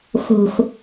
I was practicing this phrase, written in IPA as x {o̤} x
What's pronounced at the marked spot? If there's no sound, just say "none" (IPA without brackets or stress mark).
o̤